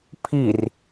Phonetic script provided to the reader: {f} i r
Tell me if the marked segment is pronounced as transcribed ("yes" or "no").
no